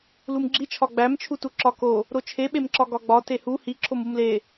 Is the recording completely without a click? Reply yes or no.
no